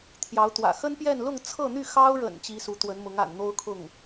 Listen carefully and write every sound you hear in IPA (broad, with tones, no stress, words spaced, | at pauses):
t̪ʰjɑ˧˥ʊ̯t̪wä̰˨˩ xə˥npjɛ˥˧n lʊ˥˧ŋt͡sʰɤ˥˧n̪y˥˩ xɑ˥ʊ̯ɻə̰˨˩n t͡ɕi˧˥su˧˥t̪wə˧˥nmʊ˧˥ŋ a̰˨˩nn̪o˥ʊ̯kʰʊ˥˩ŋ